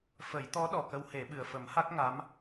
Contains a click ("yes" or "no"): no